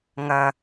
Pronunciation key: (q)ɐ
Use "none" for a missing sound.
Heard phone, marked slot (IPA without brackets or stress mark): ŋ